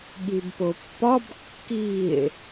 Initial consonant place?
velar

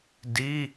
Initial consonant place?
alveolar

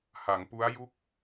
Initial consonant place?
glottal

